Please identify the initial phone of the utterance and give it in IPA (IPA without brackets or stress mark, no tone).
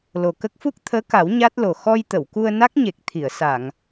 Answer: l